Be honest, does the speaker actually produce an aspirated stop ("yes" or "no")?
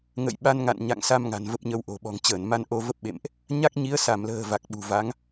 no